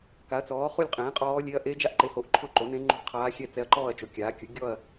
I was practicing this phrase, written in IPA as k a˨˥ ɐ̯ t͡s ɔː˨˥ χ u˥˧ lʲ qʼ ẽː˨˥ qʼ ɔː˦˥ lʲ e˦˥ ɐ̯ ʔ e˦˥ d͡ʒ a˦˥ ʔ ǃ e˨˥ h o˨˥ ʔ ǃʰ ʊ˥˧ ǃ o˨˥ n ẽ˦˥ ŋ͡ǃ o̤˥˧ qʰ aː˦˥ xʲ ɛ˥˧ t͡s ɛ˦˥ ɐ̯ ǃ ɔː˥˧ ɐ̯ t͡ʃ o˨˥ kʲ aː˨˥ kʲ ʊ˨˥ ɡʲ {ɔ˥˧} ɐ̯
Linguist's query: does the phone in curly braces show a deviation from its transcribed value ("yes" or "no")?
no